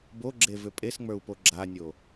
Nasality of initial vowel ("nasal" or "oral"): oral